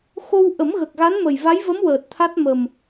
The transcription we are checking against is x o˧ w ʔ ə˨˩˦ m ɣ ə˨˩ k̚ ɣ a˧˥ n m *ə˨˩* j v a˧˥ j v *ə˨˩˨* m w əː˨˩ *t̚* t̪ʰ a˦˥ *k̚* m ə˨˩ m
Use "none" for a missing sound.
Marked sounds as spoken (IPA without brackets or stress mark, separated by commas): ə˨˩, ə˧˥, t̚, t̚